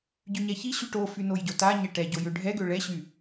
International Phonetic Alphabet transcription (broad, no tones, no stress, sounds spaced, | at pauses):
ɟ y ɲ ɛ ç i ɕ y ʈ o f y n o j ɟ o t a ɲ ɛ ʈ ɛ ɟ o j ø ɖʱ ɛ ɡ ø ɭ ɛ ɕ y